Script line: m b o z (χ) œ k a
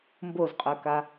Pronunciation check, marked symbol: incorrect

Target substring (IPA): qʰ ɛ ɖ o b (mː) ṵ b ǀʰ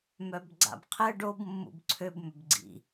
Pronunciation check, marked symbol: correct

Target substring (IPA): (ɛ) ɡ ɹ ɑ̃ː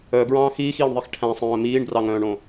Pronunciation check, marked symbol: incorrect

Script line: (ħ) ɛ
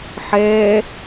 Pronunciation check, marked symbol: correct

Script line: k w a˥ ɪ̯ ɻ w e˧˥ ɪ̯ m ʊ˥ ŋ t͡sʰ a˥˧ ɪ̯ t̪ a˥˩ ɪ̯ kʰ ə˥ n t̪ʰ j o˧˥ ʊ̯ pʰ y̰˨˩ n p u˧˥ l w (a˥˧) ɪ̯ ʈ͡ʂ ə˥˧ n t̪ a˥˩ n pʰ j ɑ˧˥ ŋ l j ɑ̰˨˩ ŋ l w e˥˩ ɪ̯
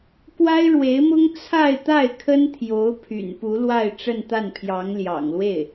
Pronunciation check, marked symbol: correct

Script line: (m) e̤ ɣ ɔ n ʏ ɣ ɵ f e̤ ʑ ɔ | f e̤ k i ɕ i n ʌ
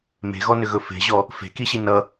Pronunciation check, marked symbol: correct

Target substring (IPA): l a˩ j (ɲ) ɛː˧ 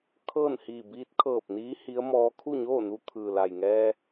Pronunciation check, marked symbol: incorrect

